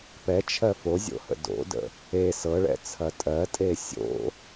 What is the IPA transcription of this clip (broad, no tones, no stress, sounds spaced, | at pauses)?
p ɛ t͡ʃʰ ɜ f o zʲ o̰ h ə̰ d o̰ d ə̰ | e s ɤ ɭ ɛ̰ t͡sʰ ɐ tʼ ɜ tʼ e sʲ o̰